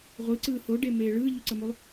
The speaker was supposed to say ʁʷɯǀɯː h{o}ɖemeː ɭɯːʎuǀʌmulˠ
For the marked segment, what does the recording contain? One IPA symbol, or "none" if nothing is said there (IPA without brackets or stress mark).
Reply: o